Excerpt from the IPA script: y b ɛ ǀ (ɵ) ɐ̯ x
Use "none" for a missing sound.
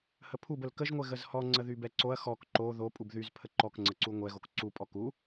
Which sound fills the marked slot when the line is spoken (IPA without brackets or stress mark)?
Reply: o